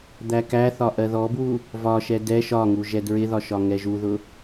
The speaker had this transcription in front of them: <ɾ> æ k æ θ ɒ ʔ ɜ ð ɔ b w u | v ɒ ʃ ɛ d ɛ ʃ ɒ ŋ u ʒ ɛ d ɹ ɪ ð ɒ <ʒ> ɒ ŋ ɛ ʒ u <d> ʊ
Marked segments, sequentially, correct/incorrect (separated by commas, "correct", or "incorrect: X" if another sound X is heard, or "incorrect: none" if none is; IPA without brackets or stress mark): incorrect: d̪, incorrect: ʃ, incorrect: ð